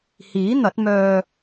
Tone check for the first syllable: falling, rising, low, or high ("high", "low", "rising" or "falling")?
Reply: rising